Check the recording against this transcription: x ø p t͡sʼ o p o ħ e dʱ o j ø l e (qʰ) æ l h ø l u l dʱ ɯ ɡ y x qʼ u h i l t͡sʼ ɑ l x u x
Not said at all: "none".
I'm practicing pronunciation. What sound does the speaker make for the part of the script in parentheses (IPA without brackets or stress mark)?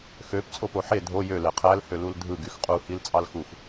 qʰ